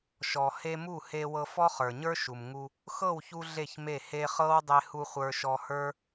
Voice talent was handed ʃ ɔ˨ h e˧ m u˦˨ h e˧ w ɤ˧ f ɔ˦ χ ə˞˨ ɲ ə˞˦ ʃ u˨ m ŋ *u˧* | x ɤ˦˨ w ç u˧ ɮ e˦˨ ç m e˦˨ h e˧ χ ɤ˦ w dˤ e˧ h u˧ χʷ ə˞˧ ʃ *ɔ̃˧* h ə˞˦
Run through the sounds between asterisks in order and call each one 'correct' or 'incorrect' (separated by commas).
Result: correct, incorrect